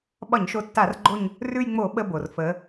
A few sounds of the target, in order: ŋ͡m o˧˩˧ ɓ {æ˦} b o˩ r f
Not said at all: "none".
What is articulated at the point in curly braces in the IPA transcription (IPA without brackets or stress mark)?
ə˦